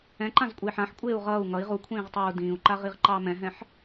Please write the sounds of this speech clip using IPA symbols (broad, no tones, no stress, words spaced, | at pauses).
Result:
ɛ̃ǃãzkʷʼeːħ ãħ kʷʼeːu̯ʁʌːu̯ ŋʌi̯ ʁukʷʰĩːʁtˤɑːu̯ dĩːu̯ǃaʁiʁǃɑː mɛ̃ɦɛ̃ħ